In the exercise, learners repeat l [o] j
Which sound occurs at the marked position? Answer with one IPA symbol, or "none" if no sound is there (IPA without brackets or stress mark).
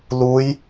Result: u